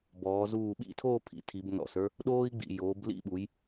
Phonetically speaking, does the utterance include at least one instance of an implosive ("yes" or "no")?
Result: yes